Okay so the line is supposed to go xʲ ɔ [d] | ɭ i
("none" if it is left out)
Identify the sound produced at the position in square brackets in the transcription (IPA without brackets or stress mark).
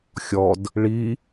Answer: d